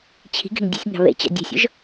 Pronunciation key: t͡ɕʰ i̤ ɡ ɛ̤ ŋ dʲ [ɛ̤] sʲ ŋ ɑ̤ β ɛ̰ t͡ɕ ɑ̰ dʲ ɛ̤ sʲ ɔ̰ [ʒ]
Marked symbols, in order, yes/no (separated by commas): yes, yes